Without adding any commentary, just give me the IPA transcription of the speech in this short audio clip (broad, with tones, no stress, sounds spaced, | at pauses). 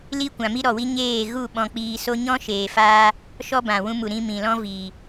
l i˦ kʷ ã˨ m i˦ ɾ ɔ˨ w i˦ ɲ eː˦˨ ɣ u˦˨ ɓ ɔ̃˧ k͡p iː˧ s o˦ ɲ ɔ̃˦ ʃ eː˨ f aː˧ | ʃ ɔ˦ b ã˨ w ũ˧ m u˨ ɾ ĩ˧ m ĩ˨ l ɔ̃˦ v iː˨